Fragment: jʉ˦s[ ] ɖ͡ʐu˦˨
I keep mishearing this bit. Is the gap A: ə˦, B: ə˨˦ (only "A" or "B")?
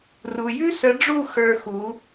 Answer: B